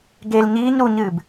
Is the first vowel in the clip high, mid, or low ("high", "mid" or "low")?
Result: mid